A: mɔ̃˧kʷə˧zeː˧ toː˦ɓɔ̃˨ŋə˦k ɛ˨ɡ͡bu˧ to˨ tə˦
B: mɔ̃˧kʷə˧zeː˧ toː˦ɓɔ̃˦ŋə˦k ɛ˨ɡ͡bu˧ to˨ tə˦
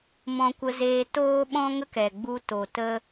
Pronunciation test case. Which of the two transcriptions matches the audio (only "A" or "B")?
B